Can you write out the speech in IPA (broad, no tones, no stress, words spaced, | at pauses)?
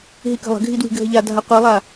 ɦikə̤lˠə̤ɡʱi dwi̤ɡʱəʎadʱa qʷilˠa